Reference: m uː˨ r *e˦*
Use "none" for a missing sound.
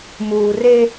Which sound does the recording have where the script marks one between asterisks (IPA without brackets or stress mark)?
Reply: e˦